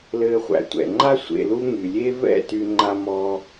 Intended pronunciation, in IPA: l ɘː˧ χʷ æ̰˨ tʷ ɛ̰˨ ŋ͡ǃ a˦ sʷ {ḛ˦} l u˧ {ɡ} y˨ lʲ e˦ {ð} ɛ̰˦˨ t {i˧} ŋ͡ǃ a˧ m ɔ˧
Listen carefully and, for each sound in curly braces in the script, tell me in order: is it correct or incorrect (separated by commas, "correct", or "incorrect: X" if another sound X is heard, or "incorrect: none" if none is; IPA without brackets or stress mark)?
incorrect: ḛ˨, incorrect: ŋ, incorrect: v, incorrect: y˧